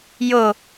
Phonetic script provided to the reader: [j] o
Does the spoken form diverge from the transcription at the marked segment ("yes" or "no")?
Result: no